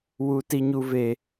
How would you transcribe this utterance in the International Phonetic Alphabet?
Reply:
w u˦ t i˦ ɲ u˦ v e˦

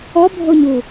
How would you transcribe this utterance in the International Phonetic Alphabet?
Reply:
ɔ bʱ o ɲ u

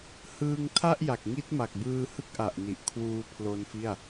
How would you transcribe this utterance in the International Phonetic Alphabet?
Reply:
h ɯː˧ ŋ tʰ a˥˩ ʔ j a˨˩ k̚ ŋ i˦˥ t̚ m a˨˩ k̚ b ɯː˧ h ɯ˦˥ k̚ ʔ a˨˩ ʔ n i˨˩ ʔ kʰ w uː˦˥ pʰ l o˦˥ n f i˥˩ a̯

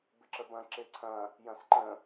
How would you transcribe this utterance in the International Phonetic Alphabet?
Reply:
b ɪ ǁ ə b ɐ̃ ǁ e ǀʰ ɐ̃ | j ɐ̃ s ǃ ə̃

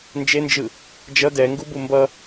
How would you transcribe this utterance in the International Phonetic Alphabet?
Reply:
n d͡ʒ e n d͡ʒ ɯ | d͡ʒ ʌ d ɛ ŋ ɡ u b u m b ʌ

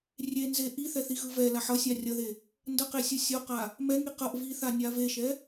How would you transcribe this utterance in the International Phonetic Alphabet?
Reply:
rʲ e n z e ʔ i θ ɛ θ i ɣ ɯ v ɛ l a ħ ʌ sʲ a rʲ ʌ ð e | n d ʌ q e sʲ ɯ sʲ o q a | m ɛ ŋ i q ʌ ʔ v i θ a nʲ a v e ʃ ɛ

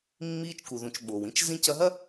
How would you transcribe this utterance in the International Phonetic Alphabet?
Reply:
mː iː˧ t͡ʃ k u˩ ð ũ˩ t͡ʃ ɓ o˩ w ĩ˥ t͡ʃ z ĩ˧ c ɐ˧ ɦ ɐ˥

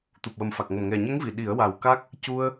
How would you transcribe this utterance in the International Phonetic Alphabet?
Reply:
t̪ u˨˩ p̚ w ə˨˩ m f a˨˩ k̚ ŋ ə˨˩ m ŋ ɛ˨˩ ɲ ə˧˥ ŋ v i˨˩˨ ɗ i˨˩˦ ə̯ w a˨˩ w k a˦˥ k̚ | c u˧ ə̯

